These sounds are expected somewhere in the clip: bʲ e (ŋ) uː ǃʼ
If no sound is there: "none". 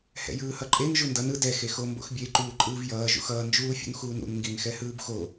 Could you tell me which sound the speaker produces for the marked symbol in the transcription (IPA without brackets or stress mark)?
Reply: ǃ